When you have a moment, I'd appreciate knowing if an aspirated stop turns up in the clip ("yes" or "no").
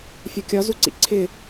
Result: yes